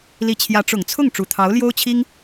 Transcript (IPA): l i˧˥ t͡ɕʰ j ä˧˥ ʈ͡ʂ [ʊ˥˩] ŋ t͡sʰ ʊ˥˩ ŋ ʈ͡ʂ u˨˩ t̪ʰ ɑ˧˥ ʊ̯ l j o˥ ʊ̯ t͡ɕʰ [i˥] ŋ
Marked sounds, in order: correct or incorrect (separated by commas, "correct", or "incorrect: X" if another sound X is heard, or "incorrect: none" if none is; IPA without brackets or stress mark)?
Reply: incorrect: ʊ˨˩, correct